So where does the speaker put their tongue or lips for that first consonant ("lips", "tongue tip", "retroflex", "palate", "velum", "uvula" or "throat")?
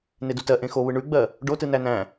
tongue tip